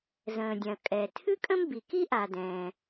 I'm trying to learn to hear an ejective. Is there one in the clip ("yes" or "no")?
yes